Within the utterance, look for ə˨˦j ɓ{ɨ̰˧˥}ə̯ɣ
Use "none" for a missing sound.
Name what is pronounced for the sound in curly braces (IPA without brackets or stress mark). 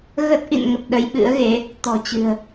ɨ̰˧˥